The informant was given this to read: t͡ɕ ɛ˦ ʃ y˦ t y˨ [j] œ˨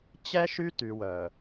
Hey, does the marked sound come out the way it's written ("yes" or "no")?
no